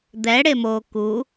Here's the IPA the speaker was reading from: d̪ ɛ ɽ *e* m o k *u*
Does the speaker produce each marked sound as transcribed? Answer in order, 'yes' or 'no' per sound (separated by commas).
yes, yes